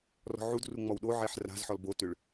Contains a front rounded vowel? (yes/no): yes